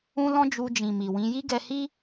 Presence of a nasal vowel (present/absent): present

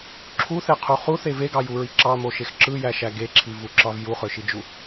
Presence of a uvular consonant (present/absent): present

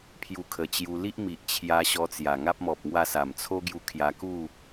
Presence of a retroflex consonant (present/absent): absent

